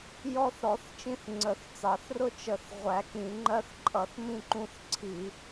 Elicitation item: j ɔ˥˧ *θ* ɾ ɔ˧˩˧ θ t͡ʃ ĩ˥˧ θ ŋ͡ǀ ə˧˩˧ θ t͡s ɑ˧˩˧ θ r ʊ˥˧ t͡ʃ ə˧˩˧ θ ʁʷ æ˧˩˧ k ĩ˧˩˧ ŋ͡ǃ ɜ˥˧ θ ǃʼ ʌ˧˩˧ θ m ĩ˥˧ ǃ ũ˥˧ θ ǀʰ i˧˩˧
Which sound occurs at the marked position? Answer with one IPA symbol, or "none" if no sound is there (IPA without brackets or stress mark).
θ